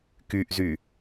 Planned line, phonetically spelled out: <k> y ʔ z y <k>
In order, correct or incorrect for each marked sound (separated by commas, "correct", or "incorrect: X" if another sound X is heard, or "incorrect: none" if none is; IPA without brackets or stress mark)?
correct, incorrect: none